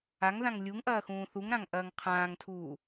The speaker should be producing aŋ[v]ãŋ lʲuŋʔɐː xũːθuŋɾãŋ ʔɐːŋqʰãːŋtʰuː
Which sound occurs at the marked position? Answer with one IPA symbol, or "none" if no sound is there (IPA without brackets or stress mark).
ð